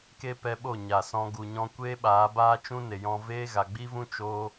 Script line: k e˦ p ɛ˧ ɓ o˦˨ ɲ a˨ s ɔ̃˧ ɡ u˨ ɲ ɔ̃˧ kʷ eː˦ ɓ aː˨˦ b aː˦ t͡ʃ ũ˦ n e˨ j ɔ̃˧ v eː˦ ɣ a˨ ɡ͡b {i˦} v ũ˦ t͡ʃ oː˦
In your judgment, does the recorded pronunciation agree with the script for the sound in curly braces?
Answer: yes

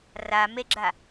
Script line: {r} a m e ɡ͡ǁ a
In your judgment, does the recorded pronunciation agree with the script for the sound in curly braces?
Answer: yes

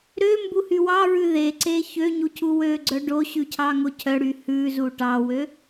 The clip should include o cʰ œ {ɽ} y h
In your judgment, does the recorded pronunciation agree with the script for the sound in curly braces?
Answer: yes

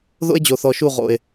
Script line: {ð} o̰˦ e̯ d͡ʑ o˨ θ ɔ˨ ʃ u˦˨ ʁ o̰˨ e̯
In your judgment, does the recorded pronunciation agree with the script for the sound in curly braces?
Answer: yes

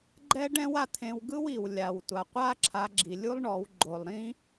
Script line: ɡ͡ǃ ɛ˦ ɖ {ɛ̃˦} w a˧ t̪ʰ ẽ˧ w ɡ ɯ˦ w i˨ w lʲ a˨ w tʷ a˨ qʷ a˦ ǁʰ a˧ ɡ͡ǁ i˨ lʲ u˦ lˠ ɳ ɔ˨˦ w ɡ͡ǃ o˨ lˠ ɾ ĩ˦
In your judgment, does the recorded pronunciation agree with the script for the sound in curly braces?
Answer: yes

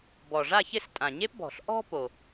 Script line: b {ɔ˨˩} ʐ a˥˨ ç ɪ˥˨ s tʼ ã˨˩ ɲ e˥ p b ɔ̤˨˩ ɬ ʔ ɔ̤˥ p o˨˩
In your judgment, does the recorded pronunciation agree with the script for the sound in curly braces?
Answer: yes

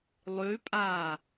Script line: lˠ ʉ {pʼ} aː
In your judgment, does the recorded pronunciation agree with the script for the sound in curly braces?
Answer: yes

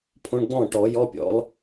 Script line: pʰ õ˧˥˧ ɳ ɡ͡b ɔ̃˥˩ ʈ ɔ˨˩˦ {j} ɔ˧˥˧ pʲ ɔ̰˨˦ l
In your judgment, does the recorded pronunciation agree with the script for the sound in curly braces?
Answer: yes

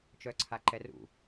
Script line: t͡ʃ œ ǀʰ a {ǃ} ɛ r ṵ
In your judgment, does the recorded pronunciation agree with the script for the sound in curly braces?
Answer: yes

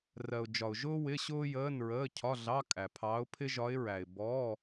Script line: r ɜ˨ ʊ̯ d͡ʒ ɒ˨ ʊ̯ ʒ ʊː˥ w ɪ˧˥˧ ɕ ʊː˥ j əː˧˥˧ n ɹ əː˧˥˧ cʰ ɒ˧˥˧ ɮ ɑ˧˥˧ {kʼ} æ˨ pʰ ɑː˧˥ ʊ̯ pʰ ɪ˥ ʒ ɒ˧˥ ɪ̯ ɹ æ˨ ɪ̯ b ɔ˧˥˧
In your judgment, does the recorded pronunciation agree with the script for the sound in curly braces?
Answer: yes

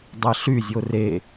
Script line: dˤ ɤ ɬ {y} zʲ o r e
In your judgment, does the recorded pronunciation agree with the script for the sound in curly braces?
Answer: yes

